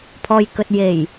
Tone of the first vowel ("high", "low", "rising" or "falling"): low